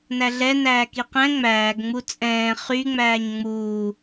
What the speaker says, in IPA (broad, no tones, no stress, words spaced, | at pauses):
næɮɛ næːkiqɛ̃ ŋ͡mæːɡ ŋ͡mut͡sʼɛ̃ː χy ŋ͡mæːɲŋ͡muː